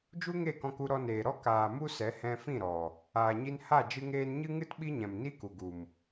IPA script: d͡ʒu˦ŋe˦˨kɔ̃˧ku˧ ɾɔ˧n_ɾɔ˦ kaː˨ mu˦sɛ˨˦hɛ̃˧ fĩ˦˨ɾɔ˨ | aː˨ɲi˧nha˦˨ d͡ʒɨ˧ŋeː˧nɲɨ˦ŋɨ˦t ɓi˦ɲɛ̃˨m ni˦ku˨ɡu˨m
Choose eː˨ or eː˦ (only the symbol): eː˨